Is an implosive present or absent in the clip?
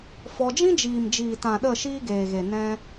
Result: present